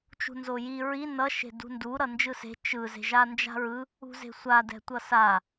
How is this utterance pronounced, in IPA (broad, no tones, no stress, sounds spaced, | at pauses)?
t͡ʃ ṳ n z o j i ɹ i n ʌ ʃ e̤ d ṳ n d u ɾ ʌ n d͡ʒ ɯ s e̤ t͡ʃ ɯ z e̤ ʒ a n d͡ʒ a̤ ɹ ɯ | ṳ z e̤ sʷ a d ɛ̤ tʷ ʌ s a